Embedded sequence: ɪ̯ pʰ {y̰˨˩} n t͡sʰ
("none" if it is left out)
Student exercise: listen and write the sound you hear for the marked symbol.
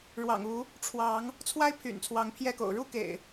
y̰˨˩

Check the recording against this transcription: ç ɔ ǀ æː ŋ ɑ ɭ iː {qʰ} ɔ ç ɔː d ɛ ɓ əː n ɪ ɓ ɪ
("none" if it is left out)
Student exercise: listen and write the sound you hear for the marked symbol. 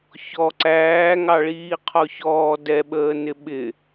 qʰ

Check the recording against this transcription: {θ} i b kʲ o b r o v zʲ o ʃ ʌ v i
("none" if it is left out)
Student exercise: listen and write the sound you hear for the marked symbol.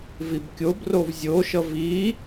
v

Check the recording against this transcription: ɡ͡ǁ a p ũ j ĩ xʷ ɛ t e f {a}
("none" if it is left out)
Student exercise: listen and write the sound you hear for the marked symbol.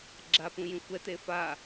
a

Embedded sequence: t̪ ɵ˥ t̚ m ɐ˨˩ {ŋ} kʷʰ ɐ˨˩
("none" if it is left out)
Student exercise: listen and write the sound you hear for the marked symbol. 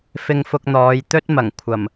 ŋ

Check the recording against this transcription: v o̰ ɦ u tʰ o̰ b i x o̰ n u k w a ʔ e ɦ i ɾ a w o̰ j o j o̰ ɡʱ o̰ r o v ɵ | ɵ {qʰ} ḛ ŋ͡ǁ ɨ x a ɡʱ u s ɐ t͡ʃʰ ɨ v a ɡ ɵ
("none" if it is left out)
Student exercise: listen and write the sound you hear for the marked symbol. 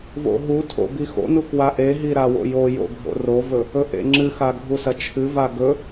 ʔ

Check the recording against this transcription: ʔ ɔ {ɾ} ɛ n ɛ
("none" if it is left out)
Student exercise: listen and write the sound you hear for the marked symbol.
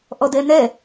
d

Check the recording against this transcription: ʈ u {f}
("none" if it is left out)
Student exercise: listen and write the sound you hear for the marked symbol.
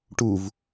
v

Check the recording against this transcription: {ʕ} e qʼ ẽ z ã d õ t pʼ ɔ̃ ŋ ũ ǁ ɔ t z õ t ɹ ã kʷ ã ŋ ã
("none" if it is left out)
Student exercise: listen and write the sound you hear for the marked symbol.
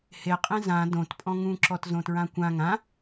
h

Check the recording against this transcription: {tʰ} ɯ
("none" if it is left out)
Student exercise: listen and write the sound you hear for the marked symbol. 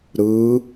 ɾ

